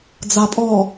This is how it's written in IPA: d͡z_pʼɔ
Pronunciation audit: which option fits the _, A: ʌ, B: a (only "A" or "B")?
B